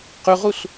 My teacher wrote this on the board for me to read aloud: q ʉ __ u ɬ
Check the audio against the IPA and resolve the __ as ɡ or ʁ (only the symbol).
ʁ